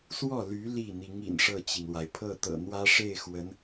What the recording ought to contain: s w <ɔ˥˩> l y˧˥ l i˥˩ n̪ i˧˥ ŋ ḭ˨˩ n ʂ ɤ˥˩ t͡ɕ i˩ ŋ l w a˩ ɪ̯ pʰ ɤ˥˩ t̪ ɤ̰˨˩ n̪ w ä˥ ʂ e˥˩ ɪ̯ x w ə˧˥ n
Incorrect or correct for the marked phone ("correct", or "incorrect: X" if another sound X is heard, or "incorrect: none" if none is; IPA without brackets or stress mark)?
correct